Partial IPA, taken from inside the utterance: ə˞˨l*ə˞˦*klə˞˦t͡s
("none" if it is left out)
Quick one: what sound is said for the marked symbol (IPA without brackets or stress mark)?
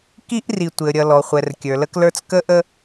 ə˦